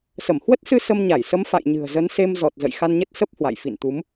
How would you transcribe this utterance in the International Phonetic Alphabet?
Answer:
sə˧˩mhwə˦˥t̚sɨ˧ sə˧mɲa˧˩jsə˨˦m fa̰˧˨j ɲɨ̤˨˩ə̯zə˨˦n se˧mzɔ˨˩t̚ zə̰˧˨jxa˧nɲə˦˥t̚ sə˦˥p̚ hwa̰˧˨j fḭ˧˨nt̪u˨˦m

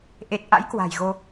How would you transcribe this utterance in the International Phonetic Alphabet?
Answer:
ʔe˨˩t̚ʔa̰˧˥j kwa̤˨˩jɣo˧

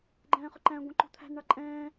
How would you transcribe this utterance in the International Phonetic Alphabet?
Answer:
ɡ͡ǃɛ̃ːχʊǃæ̃ɡʷɛ̃ ǃṳt̪ʰæ̤nɳɑ ǃʼɛ̃ː

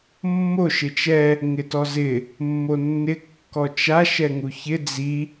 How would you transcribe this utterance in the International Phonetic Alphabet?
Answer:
mːoʃ ɪt͡ʃɛ | ŋɪtɔzɪ | mːonːɪ kːɔt͡ʃaʃ ɛŋuçɪ d͡zi

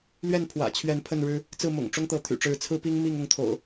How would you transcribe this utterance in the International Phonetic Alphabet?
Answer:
lɥɛ˥˨npʰwä̰˨˩t͡ɕʰɥɛ˨˦n pʰə˥˨nɻɻ̩˦ | t͡sɹ̩˥˨mʊ̰˨˩ŋʈ͡ʂʊ˦ŋt̪ɤ˨˦ t̪ʰy̰˨˩ʈ͡ʂɻ̩˨˦t͡sʰɹ̩˦pi˦ŋ mi˥˨ŋʊ˥˨ŋt̪ʰo̰˨˩ʊ̯

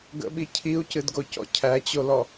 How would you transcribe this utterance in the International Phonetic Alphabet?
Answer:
ɡə̰ɓi cʰiu̯cɨdɡocɔ̰ cʰæt͡ɕolɔ

